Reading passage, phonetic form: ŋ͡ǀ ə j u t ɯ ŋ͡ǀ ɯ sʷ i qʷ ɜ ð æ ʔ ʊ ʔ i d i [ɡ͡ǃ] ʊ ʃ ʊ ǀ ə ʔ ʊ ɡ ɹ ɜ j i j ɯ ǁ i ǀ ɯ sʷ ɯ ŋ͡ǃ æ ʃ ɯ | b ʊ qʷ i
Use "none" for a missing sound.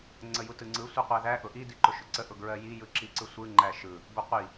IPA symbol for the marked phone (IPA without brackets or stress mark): ǃ